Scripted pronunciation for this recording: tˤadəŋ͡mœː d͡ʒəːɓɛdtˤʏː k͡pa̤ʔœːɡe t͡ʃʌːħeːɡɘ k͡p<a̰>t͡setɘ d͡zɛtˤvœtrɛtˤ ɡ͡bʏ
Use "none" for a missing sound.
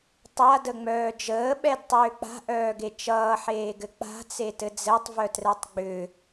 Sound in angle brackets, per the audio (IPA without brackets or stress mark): a̤